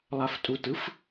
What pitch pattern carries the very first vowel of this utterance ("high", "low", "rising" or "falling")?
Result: low